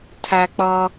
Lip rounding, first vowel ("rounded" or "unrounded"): unrounded